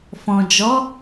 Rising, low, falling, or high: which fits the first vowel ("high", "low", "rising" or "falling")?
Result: low